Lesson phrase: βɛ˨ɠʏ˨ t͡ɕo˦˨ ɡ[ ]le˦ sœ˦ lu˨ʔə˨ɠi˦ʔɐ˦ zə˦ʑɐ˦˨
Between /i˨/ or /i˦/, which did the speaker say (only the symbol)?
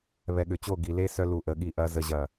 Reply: i˨